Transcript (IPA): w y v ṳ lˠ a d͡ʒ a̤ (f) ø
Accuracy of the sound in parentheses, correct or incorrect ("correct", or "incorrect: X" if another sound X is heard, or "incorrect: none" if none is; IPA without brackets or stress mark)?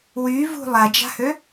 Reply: incorrect: h